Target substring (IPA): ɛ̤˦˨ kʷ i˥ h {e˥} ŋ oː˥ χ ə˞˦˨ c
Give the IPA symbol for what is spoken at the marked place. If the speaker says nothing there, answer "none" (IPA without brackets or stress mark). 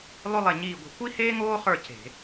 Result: eː˥